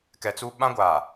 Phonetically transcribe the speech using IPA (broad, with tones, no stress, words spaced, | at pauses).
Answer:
kɛ˨t͡su˦ ɓã˦ɡʷaː˨